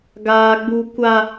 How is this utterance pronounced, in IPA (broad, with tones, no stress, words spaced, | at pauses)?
ɡaː˦ɡ͡bu˦ kʷa˦